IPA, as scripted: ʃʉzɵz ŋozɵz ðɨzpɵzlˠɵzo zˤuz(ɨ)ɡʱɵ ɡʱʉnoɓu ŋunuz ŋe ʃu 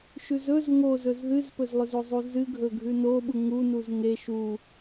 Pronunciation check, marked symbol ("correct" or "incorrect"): correct